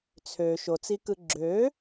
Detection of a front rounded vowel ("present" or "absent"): present